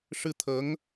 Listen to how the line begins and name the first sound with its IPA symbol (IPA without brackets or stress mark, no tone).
ʂ